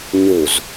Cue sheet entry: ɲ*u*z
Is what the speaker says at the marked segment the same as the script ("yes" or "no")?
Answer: yes